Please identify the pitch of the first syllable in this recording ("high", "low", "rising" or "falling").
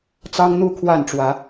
high